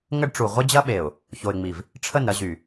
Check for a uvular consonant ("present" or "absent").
present